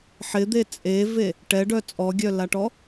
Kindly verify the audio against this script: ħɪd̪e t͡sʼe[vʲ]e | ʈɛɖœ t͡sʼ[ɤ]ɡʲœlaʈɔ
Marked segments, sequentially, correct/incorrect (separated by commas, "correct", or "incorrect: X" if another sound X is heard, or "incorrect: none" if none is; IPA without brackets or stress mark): incorrect: v, incorrect: ɔ